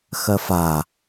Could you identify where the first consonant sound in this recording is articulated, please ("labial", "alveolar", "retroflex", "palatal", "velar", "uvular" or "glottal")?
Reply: velar